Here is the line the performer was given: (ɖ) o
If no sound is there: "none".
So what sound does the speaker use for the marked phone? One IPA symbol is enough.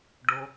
ɖ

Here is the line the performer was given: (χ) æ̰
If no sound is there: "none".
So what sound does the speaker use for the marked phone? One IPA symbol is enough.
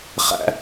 χ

